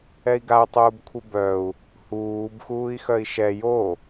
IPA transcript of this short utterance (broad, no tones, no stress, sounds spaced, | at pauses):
ɛ i̯ ɡ a u̯ tˤ uː b kʷʰ i b œ u̯ | h uː b x uː i̯ x œ i̯ ʃ ɛ j o